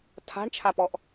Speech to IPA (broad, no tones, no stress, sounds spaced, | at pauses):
tʰ a̤ ɳ t͡ʃʰ a p ɔ ʔ